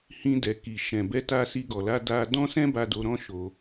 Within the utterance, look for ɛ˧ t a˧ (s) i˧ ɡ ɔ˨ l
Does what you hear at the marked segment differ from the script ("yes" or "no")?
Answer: no